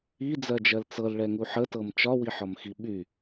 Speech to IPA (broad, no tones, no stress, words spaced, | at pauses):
id͡zɜd͡ʒɜl t͡sɤlɭɛŋu ħətɤm t͡ʃɒwiħɒmxi ɓy